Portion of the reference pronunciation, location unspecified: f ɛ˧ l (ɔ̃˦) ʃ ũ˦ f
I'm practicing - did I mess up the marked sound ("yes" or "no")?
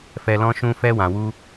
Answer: no